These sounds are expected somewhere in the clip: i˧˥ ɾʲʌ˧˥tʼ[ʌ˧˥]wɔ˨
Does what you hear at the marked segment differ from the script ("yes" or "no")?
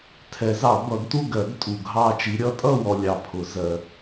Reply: yes